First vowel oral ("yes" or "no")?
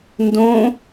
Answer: no